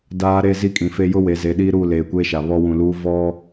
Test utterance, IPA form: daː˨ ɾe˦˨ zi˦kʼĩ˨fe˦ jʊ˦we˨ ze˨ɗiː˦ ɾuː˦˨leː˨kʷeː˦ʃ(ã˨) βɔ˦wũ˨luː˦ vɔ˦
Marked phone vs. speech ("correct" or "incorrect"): incorrect